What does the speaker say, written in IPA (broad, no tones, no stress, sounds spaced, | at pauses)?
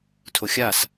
tʰ o xʲ a s